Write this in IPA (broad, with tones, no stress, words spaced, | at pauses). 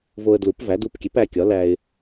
vo˧ə̯dlu˩˥pvæ˩˥ du˧pkʲe˩˥p æ˧kʲɒ˩˥læ˧ɪ̯